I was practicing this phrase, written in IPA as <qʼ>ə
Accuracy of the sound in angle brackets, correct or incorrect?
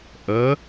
incorrect